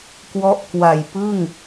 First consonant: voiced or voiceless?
voiceless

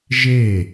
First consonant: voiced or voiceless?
voiced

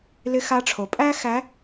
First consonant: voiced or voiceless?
voiced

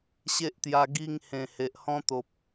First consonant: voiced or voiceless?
voiceless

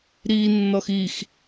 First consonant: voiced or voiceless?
voiced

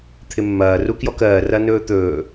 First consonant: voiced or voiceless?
voiceless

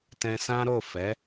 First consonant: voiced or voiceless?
voiceless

